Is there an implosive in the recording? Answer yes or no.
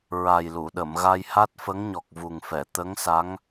yes